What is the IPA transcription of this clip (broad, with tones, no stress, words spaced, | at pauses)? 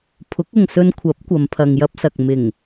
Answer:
pʰʊ˨˥k̚ʊ˨ŋsɵ˧nkʷʰɐ˨˥p̚ kʷɐ˨˧mpʰɐ˨ŋjɐ˥p̚sɐ˨k̚ mɪ˨˩ŋ